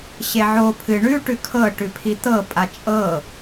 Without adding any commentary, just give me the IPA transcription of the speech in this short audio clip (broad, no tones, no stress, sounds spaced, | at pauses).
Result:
ɕ e ʕ o pʰ ɨ ɳ ʉ ʈ ʉ kʰ ɤ ʈ ʉ pʰ i t̪ ɤ pʼ a t͡ʃʼ ɤ